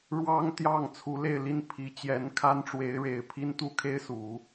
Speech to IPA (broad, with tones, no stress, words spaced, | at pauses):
ɻwɑ˥ŋt̪jɑ˥˩ŋ t͡sʰu˧˥le˥˧ɪ̯li˥˩n pʰi˧˥ t͡ɕjɛ˧˥nkʰa˥nʈ͡ʂwe˧˥ɪ̯ɻe˨˩ɪ̯ pʰi˥nt̪u˥kʰe˥ɪ̯su˨˩˦